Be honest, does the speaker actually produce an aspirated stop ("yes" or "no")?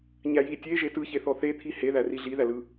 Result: yes